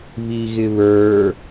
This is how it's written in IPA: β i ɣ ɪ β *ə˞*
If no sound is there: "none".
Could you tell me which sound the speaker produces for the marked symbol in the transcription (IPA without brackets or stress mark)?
ə˞